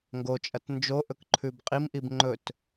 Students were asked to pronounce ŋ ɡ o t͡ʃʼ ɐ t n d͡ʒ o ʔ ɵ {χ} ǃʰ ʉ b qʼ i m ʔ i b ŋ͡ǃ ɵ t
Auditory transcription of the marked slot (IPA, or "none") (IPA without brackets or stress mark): k